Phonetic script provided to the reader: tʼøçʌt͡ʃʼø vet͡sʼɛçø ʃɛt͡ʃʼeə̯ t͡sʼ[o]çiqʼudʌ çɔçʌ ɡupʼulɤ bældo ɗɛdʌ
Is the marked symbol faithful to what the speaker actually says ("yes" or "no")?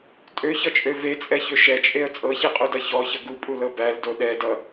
no